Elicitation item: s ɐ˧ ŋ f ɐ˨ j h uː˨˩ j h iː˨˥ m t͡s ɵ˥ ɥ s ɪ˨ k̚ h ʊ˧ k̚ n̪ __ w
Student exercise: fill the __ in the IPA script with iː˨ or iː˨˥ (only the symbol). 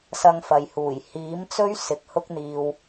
iː˨